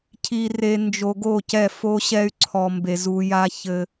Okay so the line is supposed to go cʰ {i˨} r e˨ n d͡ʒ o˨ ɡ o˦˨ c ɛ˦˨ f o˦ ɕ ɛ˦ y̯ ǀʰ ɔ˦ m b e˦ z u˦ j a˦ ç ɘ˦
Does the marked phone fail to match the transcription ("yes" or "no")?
no